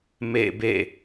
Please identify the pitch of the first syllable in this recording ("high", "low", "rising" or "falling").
falling